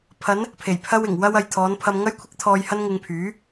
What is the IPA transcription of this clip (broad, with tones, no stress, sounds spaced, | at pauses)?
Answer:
pʰ ɐ˨˧ n | pʰ e˨˩ j pʰ ɐ˧ w ɪ˨˩ ŋ w ɐ˧ w ɐ˨ j t̪ʰ ɔː˨˧ n pʰ ɐ˧ m ŋ ɐ˥ j kʷʰ ɪ˥ k̚ t̪ʰ ɔː˧ j h ɐ˥ n ŋ ɪ˧ ŋ pʰ yː˨˥